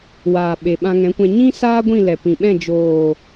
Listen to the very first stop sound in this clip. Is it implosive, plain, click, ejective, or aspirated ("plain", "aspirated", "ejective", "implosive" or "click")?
implosive